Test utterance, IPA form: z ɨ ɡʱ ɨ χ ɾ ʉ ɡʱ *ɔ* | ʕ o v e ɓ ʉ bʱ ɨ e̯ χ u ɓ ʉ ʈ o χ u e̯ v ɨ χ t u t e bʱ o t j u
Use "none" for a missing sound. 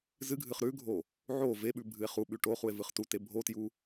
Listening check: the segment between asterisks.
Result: o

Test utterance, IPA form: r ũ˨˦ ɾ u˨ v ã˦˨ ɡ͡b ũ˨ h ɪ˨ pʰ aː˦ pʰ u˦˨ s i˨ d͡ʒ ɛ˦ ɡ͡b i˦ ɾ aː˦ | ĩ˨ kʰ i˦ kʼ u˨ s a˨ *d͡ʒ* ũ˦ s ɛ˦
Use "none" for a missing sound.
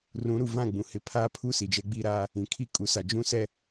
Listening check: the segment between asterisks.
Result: d͡ʒ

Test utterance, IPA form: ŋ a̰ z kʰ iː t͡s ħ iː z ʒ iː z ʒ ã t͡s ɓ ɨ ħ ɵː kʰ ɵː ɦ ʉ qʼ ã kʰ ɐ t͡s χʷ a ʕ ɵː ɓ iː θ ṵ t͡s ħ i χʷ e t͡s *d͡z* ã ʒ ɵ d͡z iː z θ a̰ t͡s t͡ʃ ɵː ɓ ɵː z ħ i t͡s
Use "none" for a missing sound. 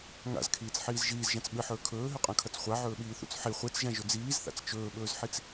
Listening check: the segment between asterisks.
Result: ʒ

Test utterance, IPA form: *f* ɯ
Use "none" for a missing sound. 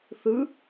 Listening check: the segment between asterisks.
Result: θ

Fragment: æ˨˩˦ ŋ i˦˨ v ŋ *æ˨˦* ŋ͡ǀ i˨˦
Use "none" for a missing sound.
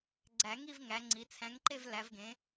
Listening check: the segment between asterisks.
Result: æ˨˦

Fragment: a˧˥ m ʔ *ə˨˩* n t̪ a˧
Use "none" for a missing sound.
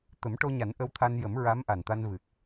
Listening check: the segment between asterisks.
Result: a˨˩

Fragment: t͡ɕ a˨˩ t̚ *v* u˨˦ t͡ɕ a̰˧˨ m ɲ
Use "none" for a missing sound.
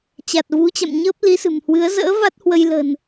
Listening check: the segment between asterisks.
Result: v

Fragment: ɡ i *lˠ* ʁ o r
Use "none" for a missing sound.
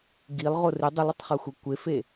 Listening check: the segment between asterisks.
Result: lˠ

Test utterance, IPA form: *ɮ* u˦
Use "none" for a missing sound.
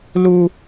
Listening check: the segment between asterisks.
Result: l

